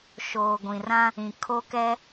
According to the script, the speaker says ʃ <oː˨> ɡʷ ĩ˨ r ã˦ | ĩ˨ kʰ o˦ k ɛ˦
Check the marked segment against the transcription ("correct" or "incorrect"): correct